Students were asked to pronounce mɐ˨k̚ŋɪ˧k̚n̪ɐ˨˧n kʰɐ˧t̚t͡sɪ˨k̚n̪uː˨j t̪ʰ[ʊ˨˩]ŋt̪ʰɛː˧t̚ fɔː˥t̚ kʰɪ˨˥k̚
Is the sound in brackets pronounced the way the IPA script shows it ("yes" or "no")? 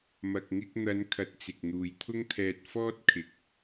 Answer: no